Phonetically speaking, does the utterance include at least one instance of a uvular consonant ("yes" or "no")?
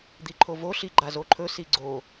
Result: no